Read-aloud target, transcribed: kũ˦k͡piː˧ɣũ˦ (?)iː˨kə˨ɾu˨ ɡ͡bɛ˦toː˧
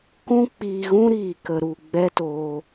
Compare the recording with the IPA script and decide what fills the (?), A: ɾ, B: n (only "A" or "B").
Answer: A